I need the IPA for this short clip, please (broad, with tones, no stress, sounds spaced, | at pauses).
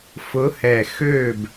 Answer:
f ʊ˨˦ h ɛ˨˩ x ø˥˨ b